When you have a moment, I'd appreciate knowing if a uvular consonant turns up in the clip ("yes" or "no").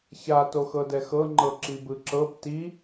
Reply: no